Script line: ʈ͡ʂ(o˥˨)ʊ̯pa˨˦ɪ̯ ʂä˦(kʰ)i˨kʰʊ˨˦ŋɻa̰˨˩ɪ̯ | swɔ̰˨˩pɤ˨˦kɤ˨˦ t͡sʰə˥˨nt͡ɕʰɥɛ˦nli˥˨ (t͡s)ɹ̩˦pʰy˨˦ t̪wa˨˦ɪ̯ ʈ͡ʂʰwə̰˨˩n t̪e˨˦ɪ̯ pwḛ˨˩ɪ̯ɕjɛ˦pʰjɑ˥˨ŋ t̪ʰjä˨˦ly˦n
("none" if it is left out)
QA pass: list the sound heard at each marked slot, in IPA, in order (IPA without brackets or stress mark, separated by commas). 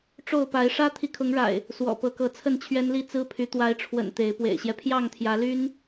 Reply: o˥˨, t̪ʰ, t͡s